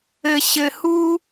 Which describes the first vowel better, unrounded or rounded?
unrounded